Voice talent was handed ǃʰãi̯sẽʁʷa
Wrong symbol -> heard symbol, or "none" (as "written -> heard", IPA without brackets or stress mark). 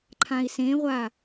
none